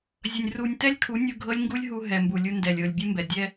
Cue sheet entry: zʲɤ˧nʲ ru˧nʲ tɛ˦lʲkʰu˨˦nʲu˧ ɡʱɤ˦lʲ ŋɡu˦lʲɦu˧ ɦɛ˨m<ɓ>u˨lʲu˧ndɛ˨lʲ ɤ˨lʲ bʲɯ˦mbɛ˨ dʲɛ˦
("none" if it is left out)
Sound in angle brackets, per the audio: b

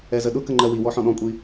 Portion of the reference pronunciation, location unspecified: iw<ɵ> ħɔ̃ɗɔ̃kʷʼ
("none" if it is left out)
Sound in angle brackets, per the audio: ɔ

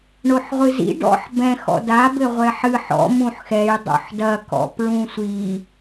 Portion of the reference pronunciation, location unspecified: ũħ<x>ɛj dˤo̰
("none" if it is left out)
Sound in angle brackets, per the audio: x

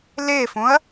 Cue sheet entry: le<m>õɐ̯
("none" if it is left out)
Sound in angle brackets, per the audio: f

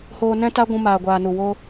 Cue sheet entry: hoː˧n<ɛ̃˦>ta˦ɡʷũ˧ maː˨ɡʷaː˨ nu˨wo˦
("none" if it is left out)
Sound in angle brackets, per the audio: ɛ̃˦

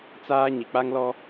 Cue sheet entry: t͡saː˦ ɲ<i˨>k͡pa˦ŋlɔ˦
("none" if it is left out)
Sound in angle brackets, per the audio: i˨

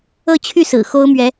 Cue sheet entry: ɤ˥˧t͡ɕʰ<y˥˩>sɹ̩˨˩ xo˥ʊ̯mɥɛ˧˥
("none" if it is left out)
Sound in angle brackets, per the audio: y˥˩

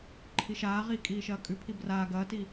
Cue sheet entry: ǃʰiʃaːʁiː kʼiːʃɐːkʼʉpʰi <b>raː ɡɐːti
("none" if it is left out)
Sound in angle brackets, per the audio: b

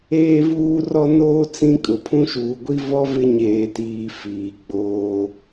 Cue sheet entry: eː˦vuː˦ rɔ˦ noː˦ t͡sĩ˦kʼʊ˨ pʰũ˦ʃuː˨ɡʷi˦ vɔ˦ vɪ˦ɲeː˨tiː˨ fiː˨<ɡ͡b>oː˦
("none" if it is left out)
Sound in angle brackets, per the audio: ɡ͡b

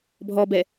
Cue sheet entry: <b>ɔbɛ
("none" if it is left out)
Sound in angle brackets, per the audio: bʱ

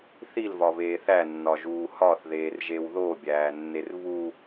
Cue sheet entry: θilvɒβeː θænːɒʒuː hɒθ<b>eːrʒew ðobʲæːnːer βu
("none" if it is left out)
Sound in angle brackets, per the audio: ð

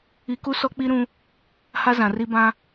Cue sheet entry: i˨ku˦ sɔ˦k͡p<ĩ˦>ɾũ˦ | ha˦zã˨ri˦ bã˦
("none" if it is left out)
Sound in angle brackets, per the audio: i˦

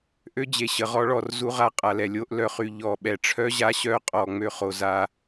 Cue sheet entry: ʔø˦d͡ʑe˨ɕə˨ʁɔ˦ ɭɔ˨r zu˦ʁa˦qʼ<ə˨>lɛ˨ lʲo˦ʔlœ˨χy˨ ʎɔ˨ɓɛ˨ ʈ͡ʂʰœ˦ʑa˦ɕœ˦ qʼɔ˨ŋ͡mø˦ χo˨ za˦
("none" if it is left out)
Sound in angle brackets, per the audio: a˨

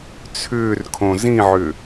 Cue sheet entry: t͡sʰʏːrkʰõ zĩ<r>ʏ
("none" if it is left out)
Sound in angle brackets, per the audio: ʕ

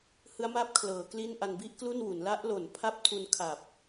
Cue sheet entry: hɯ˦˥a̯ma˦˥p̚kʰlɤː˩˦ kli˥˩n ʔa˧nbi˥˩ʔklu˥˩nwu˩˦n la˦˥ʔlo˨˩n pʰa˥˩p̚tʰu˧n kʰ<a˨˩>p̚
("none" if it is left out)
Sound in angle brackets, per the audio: a˨˩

